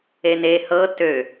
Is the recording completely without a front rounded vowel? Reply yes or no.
no